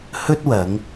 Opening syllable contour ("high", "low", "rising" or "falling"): high